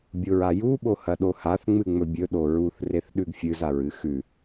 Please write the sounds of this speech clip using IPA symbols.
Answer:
bʲ o ɹ a j u ɓ o h ɐ ɗ o h a θ ŋ͡m ɨ ŋ͡m ɵ bʲ ɵ ɗ o ɹ u θ r e θ ɗ ʉ ɡ fʲ ɨ z a ɹ ɨ x ʉ

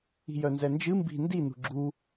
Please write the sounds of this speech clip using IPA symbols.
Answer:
i̤ j œ n z ɛ n d͡ʒ ɨ m b i̤ n d i n ṳ ɡ͡ǁ u

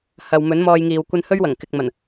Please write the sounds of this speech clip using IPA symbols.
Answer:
h ɐ˨ w m ɵ˨˥ n m ɔː˧ j ŋ iː˨ w kʷ ɐ˧ n h ɵ˥ ɥ w ɐ˨˩ ŋ k ɪ˨ k̚ m ɐ˨˩ n

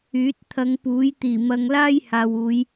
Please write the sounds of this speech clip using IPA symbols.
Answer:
yː˨˥ t̚ t̪ʰ ɐ˨˧ ŋ p uː˨˥ j t̪ iː˨˩ m ɐ˧ ŋ l aː˥ j h aː˨ w uː˨˧ j

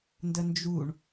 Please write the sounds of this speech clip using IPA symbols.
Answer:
n d ə n d͡ʒ u ɳ

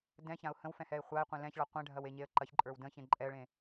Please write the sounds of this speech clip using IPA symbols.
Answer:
d ɛ̃ ç ã ʊ̯ h ə̃ w f ɛ̃ h ɛ ɪ̯ χʷ a ɪ̯ qʷ ẽ l ɛ̃ ç ɭ a qʷ ɛ̃ ɖʱ ɐ w e ɲ e ə̯ ǃ ɐ ç ǃʼ ə˞ w d ə̃ ç ẽ ǃʼ ɛ ə̯ ɭ ẽ

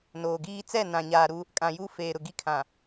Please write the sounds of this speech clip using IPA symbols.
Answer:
n oː˨ ɡ iː˦ t͡s ɛ˦˨ n ã˨ ɲ aː˨ ɾ u˦ | kʼ ã˨ j u˦ f eː˨ ɾ ʊ˨ ɡ i˦ kʰ ã˨

